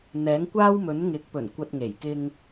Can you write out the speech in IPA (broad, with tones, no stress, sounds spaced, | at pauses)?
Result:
n̪ ɛː˨˥ ŋ kʷ aː˥ w m ɵ˨˥ n ŋ ɪ˨˥ k̚ p ɵ˨˩ n kʷ ɐ˨ t̚ ŋ e˨˩ j k ɪ˧ ŋ